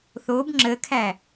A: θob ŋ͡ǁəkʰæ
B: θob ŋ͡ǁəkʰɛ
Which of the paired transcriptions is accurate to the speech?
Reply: A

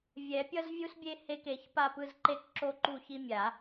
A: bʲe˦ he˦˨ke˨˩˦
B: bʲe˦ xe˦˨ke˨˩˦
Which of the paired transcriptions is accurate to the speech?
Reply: A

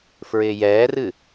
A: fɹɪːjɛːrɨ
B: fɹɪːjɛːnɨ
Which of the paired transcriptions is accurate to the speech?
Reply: A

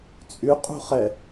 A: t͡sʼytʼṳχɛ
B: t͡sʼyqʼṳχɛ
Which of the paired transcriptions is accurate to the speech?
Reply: B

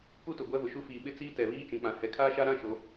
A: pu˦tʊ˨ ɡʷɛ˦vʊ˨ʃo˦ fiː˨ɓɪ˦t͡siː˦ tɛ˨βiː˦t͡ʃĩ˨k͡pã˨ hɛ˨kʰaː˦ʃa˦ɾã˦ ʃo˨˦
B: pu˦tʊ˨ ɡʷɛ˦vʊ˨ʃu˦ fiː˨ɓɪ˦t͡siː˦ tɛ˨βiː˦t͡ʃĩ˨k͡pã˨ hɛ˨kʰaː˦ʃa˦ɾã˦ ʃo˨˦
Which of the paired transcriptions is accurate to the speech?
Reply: B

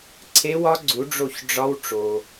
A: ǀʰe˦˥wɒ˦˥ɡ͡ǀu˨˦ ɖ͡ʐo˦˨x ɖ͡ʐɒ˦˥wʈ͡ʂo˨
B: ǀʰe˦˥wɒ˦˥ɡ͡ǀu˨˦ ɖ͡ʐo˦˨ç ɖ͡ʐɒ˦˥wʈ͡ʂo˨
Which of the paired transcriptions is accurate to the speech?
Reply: B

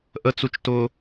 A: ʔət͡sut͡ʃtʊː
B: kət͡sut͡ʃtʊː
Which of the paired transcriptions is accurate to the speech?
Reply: A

